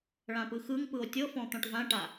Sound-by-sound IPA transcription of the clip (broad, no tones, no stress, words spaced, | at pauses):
ɭãpɯxɯŋpɯo̯ tʲɤfɔ̃ t̪ɔ̃ʈvãʈa